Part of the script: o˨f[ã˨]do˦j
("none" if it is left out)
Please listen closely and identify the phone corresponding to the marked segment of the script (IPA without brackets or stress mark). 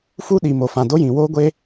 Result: ã˨